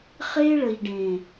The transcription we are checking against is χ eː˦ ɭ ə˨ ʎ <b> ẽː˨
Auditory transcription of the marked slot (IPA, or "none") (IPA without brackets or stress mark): ɖ